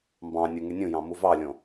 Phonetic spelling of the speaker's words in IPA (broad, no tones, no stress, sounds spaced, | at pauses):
m b ɑ̃ nʲ u ŋ y nʲ ũ j ɑ̃ m u v ɑ lʲ õ